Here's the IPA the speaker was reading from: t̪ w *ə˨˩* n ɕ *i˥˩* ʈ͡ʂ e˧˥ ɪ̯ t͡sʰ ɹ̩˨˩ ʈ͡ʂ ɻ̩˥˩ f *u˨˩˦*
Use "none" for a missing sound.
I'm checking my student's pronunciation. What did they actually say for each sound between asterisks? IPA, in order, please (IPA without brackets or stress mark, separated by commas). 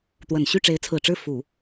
ə˨˩, y˥˩, u˨˩˦